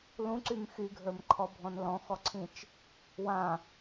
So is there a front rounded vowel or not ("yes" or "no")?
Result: yes